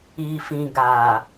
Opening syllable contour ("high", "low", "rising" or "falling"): low